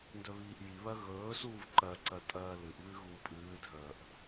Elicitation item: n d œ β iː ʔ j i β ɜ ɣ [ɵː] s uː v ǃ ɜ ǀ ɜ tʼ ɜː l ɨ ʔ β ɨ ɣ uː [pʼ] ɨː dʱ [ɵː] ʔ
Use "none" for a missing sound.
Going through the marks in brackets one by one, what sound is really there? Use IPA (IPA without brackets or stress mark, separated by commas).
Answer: ɵː, pʼ, œː